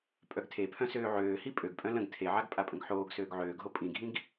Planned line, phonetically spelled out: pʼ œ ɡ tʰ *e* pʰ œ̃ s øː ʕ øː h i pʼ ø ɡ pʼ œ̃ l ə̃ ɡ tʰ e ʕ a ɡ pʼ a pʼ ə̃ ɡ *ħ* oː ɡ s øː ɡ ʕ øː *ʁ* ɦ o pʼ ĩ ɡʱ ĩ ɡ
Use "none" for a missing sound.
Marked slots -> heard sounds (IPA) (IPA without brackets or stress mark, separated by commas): e, ħ, ɡ